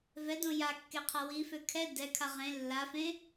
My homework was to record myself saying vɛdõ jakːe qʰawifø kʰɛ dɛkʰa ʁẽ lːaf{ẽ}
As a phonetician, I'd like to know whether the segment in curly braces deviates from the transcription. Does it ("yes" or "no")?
no